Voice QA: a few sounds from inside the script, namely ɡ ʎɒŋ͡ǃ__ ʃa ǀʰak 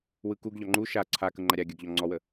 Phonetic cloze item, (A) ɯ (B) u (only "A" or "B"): B